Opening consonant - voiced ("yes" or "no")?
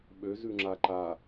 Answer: yes